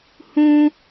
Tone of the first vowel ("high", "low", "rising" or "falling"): high